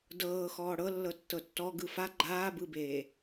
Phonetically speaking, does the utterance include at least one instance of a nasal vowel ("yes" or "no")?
no